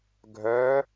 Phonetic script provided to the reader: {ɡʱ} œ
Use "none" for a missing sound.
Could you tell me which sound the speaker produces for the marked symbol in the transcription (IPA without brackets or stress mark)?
ɡʱ